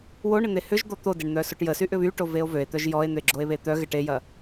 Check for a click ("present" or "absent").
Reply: present